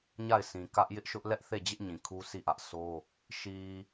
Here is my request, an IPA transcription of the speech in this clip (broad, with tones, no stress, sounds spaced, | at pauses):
ɲ a˦˨ ɪ̯ s ĩ˨ k ä˦ ʔ j ɪ˦ ʔ ʃ ʊ˦ ʔ l ɛ˦ ʔ θ e˦˨ d͡ʑ ɪ˦ ʔ ɲ ĩ˨ kʰ u˦ sʰ i˦˨ ʔ ä˦ ʔ s o˦ | ʃ i˨